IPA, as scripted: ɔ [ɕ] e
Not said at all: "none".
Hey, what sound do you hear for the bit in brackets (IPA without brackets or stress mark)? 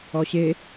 ɕ